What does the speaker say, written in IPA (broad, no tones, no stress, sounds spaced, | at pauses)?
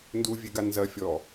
n d u vʲ e ɡ a n z ɐ fʲ ɔ